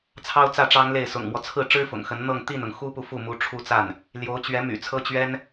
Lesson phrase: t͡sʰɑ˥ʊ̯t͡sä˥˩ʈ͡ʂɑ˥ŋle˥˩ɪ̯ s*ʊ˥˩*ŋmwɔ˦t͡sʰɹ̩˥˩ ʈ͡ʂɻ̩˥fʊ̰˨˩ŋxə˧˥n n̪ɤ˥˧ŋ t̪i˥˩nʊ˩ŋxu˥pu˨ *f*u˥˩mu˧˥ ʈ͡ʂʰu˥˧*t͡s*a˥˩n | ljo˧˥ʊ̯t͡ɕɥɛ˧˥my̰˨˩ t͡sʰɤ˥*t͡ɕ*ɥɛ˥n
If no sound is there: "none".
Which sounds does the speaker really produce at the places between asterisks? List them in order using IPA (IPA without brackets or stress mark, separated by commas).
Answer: ʊ̰˨˩, f, t͡s, t͡ɕ